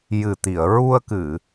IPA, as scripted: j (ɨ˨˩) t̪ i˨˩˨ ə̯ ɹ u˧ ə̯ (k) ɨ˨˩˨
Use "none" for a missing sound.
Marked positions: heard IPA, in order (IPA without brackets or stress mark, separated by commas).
ɨ˨˩, k